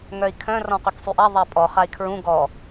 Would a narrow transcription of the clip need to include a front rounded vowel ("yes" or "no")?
yes